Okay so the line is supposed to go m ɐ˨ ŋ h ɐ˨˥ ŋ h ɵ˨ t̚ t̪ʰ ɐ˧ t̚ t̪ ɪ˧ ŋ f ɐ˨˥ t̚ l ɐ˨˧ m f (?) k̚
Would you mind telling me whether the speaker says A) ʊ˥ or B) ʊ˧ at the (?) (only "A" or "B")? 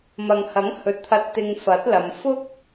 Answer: A